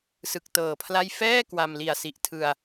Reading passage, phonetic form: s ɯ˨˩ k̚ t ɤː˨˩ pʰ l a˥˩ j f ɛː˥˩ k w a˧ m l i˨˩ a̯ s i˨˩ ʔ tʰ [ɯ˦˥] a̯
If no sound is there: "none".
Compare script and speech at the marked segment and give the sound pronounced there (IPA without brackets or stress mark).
ɯ˧